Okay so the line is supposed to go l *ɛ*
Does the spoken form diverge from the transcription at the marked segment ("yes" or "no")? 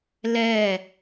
no